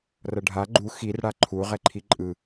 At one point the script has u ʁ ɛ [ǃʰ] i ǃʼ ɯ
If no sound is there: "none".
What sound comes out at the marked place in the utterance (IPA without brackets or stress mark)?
ǃʰ